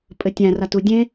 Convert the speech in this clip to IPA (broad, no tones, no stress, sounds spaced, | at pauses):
pʼ ɘ tʲ æ̃ r a t u dʲ ẽ